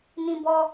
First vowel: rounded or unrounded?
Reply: unrounded